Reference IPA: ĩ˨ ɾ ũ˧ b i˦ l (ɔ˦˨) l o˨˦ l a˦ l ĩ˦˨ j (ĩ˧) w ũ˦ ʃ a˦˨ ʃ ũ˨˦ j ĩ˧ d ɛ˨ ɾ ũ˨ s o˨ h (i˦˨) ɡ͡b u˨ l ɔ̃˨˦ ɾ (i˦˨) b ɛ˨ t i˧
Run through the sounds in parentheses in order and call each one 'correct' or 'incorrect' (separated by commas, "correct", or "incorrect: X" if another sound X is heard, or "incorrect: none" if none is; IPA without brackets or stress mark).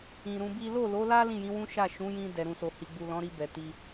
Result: incorrect: o˦˨, incorrect: ĩ˨˦, incorrect: i˨, incorrect: i˧